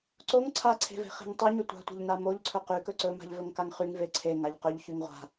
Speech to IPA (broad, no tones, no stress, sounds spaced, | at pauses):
ǀ o ŋ ǀʰ a ǀʰ e̤ v e̤ χ e̤ ŋ tˤ y ɲ ɵ tʷ a̤ tʷ e̤ ʎ n a m o ʎ ǀʰ ɵ q y k ɵ ǀ ɵ m a̤ ʎ v ɵ ŋ k a ŋ χ y ŋ v e ǀʰ e ŋ a ʎ q ɵ ʎ ç y ŋ ʁʷ a̤